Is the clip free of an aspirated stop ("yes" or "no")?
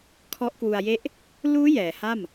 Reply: no